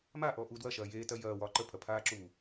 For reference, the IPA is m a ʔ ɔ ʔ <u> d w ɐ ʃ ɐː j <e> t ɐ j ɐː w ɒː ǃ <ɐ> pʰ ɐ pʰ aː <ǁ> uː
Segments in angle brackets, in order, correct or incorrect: correct, incorrect: eː, incorrect: ə, correct

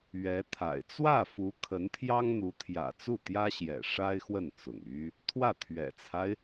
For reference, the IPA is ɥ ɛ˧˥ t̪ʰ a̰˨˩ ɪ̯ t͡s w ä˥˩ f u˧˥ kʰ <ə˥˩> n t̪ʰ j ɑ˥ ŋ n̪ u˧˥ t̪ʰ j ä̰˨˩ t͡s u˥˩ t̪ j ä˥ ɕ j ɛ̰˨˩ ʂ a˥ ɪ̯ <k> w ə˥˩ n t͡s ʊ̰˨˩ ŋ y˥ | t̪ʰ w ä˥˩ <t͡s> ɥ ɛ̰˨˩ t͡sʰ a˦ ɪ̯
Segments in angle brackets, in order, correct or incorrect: incorrect: ə˧˥, incorrect: x, incorrect: t̪ʰ

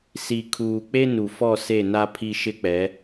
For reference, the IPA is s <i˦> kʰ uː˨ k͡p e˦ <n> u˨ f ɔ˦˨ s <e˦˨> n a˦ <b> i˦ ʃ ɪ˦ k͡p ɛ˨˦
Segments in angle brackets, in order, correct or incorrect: incorrect: i˨, correct, correct, incorrect: pʰ

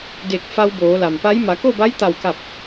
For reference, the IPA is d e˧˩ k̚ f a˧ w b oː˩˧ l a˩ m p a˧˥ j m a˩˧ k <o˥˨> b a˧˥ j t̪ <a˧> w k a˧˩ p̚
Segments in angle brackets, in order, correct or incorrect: correct, incorrect: a˧˩

